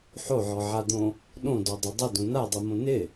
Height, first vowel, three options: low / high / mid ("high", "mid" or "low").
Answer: mid